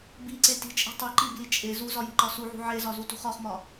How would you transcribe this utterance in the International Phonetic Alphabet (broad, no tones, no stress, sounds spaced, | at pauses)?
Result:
b i ǀ e t i̤ t͡ʃʼ i̤ tˤ i ǃ i b l i t͡ʃʼ e z u z ɒ j i̤ ǃ ɒ s u ʕ ṳ ʕ e z ɒ z u t ṳ χ ɒ χ m ɒ